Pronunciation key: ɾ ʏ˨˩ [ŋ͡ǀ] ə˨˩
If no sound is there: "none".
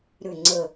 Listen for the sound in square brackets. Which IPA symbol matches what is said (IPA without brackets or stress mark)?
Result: ŋ͡ǀ